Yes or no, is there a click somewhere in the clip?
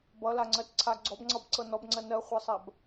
yes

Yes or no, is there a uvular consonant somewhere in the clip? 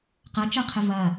yes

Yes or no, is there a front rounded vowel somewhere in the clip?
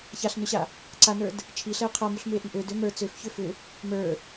yes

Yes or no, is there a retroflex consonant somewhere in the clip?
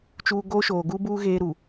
no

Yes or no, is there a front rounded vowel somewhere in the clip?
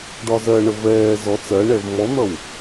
no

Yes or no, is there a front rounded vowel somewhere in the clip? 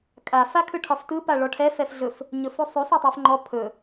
no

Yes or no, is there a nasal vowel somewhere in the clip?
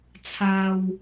no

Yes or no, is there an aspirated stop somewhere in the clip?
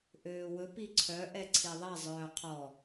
yes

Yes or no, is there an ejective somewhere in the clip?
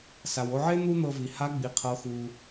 no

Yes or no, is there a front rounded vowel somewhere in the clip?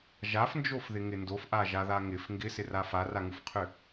yes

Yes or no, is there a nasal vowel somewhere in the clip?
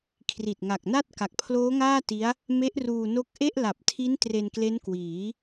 no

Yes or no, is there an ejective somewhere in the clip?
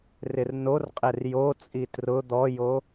yes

